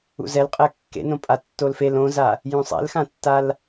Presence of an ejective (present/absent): present